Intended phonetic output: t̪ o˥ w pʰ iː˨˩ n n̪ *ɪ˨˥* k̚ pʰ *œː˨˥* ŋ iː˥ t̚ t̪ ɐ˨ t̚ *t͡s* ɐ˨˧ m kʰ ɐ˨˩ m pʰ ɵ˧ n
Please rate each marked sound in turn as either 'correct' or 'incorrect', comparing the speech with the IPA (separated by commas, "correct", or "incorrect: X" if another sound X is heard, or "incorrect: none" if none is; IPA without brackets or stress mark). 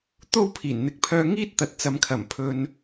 correct, incorrect: œː˧, correct